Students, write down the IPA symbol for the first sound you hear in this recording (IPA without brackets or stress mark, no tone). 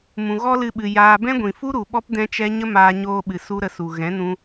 m